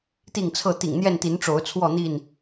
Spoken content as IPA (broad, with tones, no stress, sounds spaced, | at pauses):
t̪ i˥˨ ŋ t͡sʰ ɤ˥˨ t̪ ḭ˨˩ ŋ n̪ j ɛ˥˨ n t̪ i˨˦ n ʈ͡ʂ o˨˦ ʊ̯ t͡sʰ w ɔ˥˨ n̪ i˥˨ n